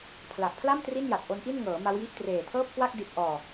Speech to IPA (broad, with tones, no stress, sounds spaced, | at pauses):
pʰ l a˨˩ ʔ pʰ l a˥˩ m t r i˥˩ n j a˨˩ t̚ ʔ o˦˥ n ʔ i˥˩ n ŋ ɤː˩˦ m a˦˥ w j i˦˥ ʔ t r eː˨˩ tʰ ɤː˥˩ p̚ k w a˥˩ k̚ d i˨˩ t̚ ʔ ɔː˨˩